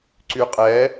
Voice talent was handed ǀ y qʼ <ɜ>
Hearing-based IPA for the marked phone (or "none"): ɛ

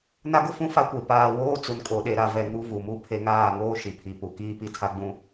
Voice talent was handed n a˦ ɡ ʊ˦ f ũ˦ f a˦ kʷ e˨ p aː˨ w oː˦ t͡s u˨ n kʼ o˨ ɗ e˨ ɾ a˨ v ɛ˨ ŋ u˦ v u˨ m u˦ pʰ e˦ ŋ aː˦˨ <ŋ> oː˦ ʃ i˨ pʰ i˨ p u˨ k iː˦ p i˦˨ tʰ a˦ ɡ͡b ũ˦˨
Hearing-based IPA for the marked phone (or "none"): ŋ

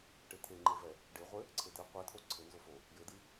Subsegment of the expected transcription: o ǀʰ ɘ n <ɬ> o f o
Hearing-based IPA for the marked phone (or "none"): z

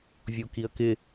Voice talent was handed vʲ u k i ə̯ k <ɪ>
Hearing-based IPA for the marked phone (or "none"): ɪ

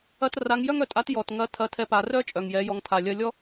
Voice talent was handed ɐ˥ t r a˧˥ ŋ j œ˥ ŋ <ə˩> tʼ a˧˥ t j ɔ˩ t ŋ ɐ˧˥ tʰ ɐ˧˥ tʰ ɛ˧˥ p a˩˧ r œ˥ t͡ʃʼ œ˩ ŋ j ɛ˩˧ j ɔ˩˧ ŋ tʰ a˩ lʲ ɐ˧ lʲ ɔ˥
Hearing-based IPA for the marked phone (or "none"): œ˩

